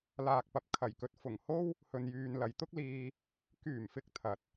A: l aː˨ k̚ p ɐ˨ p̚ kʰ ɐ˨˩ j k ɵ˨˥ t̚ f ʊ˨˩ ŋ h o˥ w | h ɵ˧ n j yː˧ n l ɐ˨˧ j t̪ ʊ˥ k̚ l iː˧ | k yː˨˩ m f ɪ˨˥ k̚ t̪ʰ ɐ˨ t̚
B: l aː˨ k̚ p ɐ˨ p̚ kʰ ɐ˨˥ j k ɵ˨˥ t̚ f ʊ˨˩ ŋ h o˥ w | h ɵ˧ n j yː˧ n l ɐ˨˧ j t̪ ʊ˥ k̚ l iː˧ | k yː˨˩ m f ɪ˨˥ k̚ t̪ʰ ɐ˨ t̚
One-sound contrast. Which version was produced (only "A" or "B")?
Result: A